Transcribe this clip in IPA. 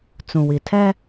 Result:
t͡sũ˨wi˨tʰɛ˦

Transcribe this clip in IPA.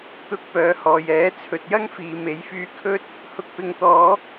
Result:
t̪ʊ˧k̚pœː˨˧hɔː˨jɛː˨˥ t͡sʰɵ˨t̚jɐ˥ŋfiː˨me˨˥j fyː˧ kʰɵ˥t̚ | hʊ˨k̚pɪ˨ŋt̪ɔː˨˧

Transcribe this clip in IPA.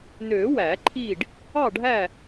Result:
nø˨˩˦ wæ˨˩˦ ǃʰi˥˨ɖ | ɑ˥˨ɖʱæ˥˨

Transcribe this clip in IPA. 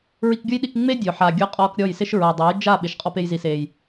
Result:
ɹi˧kɡʲʊ˦jɗi˧k ŋ͡me˦ dʲʊ˨ħa˨ ɡʲʊ˧qʼɔ˧kɾʲɔ˦˨jsɪ˦ʃ ɹa˨dˤa˨˦jd͡ʒa˦˨ ɓɪ˨ʃqʼɔ˧ pe˧jzi˨se˨j

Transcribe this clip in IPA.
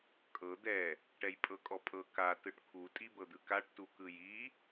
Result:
kʼɤ d̪ɛ | ʈɛjpʼɤkʼɔpʼɤ ka tɯʈkʰu tʼibɤd̪ɯkaʈ tukɯji

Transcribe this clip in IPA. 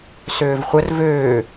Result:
søːvχʷər vøː

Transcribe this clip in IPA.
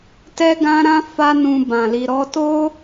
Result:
tɛ˦ɡã˦ɾã˦ fa˦nũ˧ bã˨ li˨ɾɔ˧to˦

